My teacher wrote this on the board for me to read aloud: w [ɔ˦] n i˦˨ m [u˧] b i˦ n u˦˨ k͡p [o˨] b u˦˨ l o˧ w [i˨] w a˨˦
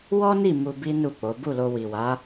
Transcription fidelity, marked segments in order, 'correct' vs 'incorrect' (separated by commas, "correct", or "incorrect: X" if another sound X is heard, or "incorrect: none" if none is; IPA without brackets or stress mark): correct, correct, incorrect: o˨˦, correct